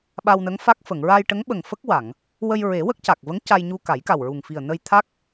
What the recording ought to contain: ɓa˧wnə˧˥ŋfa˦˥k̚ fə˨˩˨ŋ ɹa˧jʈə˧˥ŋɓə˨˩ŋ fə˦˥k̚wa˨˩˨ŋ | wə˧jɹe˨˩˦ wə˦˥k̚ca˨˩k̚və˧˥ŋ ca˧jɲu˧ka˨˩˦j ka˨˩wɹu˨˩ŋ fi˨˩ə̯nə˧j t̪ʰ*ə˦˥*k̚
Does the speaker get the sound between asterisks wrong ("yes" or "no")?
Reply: yes